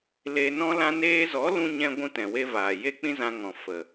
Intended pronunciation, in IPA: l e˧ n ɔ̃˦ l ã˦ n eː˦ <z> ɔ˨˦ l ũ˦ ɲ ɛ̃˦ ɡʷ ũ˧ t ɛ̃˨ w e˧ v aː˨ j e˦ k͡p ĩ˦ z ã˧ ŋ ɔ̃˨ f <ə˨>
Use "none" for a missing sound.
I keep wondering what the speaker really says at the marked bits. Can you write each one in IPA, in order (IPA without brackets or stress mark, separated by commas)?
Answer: z, ə˨